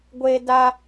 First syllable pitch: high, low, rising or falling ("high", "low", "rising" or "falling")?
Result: high